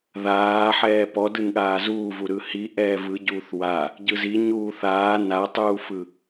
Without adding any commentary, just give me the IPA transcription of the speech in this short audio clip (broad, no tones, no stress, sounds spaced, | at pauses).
ð aː ħ ɛː p ɔ d ɯ n ɠ aː z uː v u ɾ ɯ h i ʔ ɛː v ɯ ɟ uː θ w a | ɟ ɯ z i ɲ uː θ aː n a tˤ uː f ɯ